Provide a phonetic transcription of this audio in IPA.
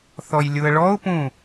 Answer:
θ ɔ j lʲ u ə̯ ɭ ɔ ʊ̯ p ũː

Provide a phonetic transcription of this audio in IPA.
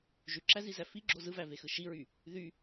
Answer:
ʒ y ǁ æ z i z æ f i ɡ͡ǁ o z ɯ v æ v e x ɯ ʃ i ɹ y | ð y

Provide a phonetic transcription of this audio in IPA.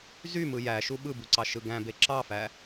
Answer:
z y m ɯ j æ ʃ u ɓ ɯ b u ǀ ɑ ʃ ɯ ɡ æ̃ b e ǁ ɑ f æ

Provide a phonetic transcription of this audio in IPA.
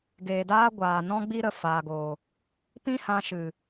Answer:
ɡ eː˨ d aː˦ ɡʷ aː˨ n ɔ̃˦ ɡ͡b i˦ ɾ ə˨ f aː˨ ɡ oː˨ | p ĩ˦ h ã˧ ʃ ɨ˨

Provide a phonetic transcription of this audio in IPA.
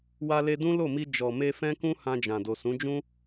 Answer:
w a˧ l e˧ d ũ˦ l o˦˨ m i˧ d͡ʒ ɔ˨ m e˧ f ɛ̃˦ k ũ˦ h ã˧ d͡ʒ ã˨ d o˨ s ũ˨˦ d͡ʒ ũ˦

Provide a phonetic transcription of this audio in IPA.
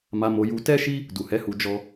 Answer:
m a˧ m o˧ j u˧ t ɛ˦ ʃ i˦ | d u˨ h ɛ˨˦ h u˧ d͡ʒ ɔ˦

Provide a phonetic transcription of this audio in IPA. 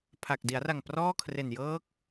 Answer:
pʰ a˨˩ k̚ d i˩˦ a̯ r a˨˩ ŋ p r ɔː˥˩ kʰ r e˨˩ n j ɤː˦˥ k̚

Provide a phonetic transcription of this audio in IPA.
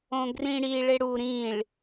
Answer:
õ ɡ r ĩ ɽ i ɭ e ɽ u ɾ ĩ ɭ

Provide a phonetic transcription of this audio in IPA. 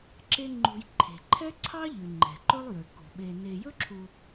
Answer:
ǁ e˦ ŋ͡ǃ ṳ˨ j ǃʰ e̤˩ ǃʰ ɛ˥ ǀʰ ɑ˥ ʎ ʉ˩ ŋ͡ǃ ɛ̤˩ ǃ ɵ˥ lˠ j ø˩ k ṳ˩ ɓ e˨ n e˨ j ɵ˥ ǁʰ u˨

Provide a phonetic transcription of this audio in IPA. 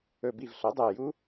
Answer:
ɵ˧˩ b i˧˩ v ɬ o˩˥ dˤ o˧˩ j u˦˥

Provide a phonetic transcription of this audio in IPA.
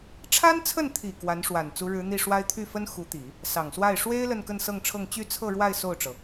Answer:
ʈ͡ʂʰ a˥ n t͡sʰ ə˥˩ n t̪ʰ i˨˩ k w a˧˥ n ʂ w a˨˩ n t͡s u˧˥ ɻ ɻ̩˧˥ n̪ i˥˩ ʂ w a˥ ɪ̯ t̪ʰ y˥˩ f ə˥ n x u˧˥ t̪ i˨˩˦ | s ɑ˨˩ ŋ s w a˥˩ ɪ̯ ʂ w e˥ ɪ̯ l ə˥˧ n k ə˥˧ n s ɤ˥˧ ŋ ʈ͡ʂʰ ɤ˥˧ ŋ t͡ɕ y˥˧ t͡sʰ ɤ˥˧ ɻ w a˥˧ ɪ̯ s o˥˩ ʊ̯ ʈ͡ʂ ɤ˩

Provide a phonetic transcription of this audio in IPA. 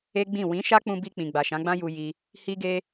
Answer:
e˦ ɡ͡b ĩ˦˨ w ĩ˨˦ ʃ a˦ k͡p ũ˧ b i˧ k͡p ĩ˨ ɡ͡b a˨ ʃ ã˨˦ ɡ͡b ã˦ j u˧ j i˧ | h i˧ ɡ e˧

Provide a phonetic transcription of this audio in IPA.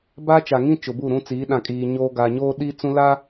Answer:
b aː˦ t͡ʃ a˨ ŋ ĩ˦ t͡ʃ ʊ˨ b u˦˨ ɾ ũ˦ t͡s iː˨˦ ɗ ã˨ kʼ iː˨ ɲ oː˦ ɡ a˨ ɲ oː˦ ɗ iː˦ t͡s ũ˦ l a˦

